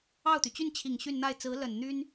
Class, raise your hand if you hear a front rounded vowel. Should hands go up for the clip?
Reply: yes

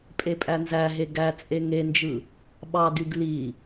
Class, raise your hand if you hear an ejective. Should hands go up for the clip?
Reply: yes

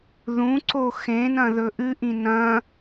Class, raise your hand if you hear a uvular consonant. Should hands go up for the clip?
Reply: no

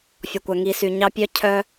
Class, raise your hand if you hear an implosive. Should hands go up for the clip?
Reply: no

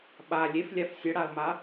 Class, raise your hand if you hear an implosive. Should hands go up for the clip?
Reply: yes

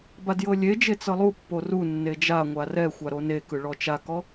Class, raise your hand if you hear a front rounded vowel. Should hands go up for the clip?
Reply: no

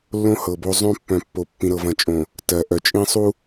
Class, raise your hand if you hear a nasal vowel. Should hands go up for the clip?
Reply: yes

